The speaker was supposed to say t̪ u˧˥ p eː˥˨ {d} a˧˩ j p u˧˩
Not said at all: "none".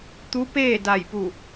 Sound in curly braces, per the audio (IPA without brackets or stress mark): d